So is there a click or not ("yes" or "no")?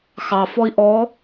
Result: no